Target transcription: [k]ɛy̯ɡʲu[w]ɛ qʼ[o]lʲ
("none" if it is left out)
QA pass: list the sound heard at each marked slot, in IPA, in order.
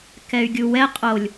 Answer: k, w, o

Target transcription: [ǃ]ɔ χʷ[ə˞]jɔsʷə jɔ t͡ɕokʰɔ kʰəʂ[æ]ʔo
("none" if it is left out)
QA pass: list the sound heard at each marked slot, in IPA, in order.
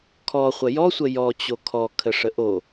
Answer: kʰ, ə, ə

